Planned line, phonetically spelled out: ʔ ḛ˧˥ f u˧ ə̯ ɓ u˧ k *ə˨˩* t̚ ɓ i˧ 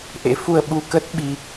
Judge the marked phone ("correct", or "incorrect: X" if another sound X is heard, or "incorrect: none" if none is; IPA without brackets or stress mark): incorrect: ə˦˥